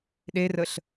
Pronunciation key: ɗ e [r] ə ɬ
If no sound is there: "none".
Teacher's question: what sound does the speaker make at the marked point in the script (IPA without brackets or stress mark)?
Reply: r